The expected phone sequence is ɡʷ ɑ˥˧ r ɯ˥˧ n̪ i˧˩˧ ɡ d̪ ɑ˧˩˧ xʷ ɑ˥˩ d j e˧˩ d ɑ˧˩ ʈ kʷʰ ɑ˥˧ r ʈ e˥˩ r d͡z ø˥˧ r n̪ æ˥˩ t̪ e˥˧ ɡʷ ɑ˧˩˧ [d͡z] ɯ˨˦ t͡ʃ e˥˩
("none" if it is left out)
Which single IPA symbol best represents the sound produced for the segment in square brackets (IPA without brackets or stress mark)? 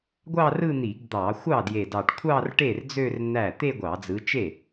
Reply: d͡z